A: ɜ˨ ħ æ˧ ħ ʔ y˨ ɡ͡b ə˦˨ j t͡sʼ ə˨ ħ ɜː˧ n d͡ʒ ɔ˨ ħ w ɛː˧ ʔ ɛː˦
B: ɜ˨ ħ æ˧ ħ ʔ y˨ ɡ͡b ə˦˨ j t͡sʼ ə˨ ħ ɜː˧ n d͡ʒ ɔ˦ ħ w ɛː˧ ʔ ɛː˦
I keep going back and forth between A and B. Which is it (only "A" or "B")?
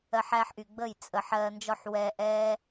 B